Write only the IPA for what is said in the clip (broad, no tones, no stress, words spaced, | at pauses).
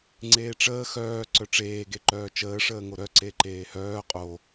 ŋ͡ǀeːʈ͡ʂəː xœː ǀœʈ͡ʂeː ɡeǃœːt͡ʃəː ʂəːŋoɾœ ǀeǃeːhœː qʼo